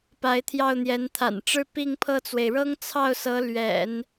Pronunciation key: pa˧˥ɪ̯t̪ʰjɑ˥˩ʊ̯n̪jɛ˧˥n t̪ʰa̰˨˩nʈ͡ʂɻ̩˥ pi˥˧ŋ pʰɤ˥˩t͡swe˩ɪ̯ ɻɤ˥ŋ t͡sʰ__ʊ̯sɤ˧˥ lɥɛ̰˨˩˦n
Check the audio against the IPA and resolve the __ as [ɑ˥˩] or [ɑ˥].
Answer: ɑ˥˩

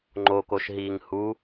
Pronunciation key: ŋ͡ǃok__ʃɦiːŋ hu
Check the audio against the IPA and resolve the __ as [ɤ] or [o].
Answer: o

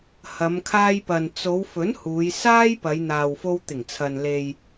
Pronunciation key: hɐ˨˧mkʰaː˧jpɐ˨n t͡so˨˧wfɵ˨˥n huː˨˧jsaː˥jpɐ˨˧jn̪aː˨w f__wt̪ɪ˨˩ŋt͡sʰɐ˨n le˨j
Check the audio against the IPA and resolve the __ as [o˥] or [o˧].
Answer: o˧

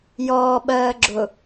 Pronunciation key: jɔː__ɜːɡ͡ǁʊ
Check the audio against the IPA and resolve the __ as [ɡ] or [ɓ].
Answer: ɓ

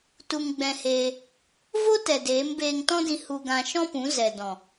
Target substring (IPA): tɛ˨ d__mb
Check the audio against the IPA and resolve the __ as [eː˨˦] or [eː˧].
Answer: eː˨˦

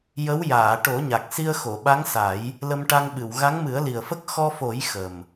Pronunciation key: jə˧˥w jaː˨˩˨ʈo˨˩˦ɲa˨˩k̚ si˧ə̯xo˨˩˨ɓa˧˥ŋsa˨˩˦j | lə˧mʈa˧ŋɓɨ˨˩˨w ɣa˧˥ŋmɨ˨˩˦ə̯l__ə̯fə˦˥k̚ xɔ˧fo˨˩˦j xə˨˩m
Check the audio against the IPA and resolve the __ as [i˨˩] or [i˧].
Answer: i˨˩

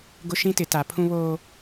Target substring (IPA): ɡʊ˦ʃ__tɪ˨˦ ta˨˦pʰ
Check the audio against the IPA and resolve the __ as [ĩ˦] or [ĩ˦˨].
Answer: ĩ˦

